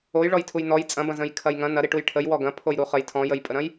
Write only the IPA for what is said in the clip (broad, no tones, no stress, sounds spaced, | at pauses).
o j ɭ ɔ j tʰ u j n ɔ j t͡sʼ ɐ̃ b ɐ̃ z ə̃ j kʰ ɐ j ŋ ɐ̃ n ɐ ɾ i ʈ u j ʈʰ ə j w ɔ ɡ ɐ̃ pʰ o j ɾ u χ ə j tʰ ɔ̃ j ə j pʼ ə ɾ ɐ̃ j